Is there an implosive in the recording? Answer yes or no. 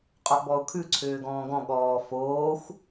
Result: yes